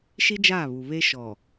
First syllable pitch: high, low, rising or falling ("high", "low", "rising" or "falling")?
high